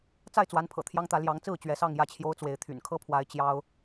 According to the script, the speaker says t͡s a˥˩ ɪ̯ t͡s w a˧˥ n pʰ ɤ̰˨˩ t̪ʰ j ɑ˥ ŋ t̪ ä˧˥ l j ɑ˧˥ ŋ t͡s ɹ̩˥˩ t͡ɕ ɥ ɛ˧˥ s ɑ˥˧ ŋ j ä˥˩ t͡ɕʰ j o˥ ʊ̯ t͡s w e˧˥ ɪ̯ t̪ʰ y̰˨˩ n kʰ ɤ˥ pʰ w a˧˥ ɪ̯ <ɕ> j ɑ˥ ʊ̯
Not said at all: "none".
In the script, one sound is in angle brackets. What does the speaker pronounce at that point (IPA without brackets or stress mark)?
t͡ɕ